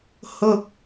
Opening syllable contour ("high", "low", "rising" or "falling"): high